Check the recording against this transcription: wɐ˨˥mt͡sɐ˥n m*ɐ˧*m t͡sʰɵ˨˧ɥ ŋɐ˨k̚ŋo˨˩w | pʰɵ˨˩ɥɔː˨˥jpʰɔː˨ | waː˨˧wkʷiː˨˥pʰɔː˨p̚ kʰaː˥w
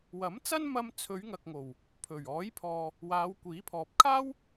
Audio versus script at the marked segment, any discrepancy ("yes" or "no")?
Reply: yes